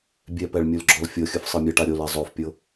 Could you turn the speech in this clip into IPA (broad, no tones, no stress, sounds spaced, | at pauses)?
bʲ ɛ p ɛ ɭ mʲ u l ɡ͡ǁ ɔ l fʲ ɤ xʲ ɯ f sˤ ɯ mʲ ɤ ʈ a ɾʲ o l ɛ zˤ o f pʲ ɤ